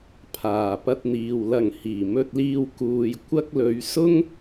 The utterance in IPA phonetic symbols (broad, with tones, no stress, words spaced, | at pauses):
pʰaː˨˩pɐ˧t̚n̪iː˨w lɐ˨˩ŋ hiː˨˩mɵ˧t̚liː˧w kuː˨j kʷɐ˥k̚ lɵ˨˧ɥsʊ˥ŋ